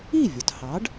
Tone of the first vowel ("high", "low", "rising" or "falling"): falling